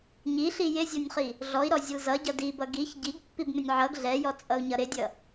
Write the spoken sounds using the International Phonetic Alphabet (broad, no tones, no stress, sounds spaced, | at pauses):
ɲ i ɬ i j ɪ zʲ ɔ nʲ χ i | ɮ ɔ i̯ ɾ ɔ zʲ ʌ l z ʌ ɟ ʌ d i b ʌ ɡ i ç ɟ i ɡ pː i b m ɪ nʲ ʕ ʌ ɡ ɮ ɛ j ɔ t͡sʼ ʌ u̯ ɲ ʌ ɾ ɪ dʲ ʌ